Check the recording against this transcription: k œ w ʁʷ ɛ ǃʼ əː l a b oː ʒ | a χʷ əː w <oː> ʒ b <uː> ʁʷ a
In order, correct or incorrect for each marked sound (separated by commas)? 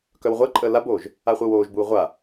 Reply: correct, correct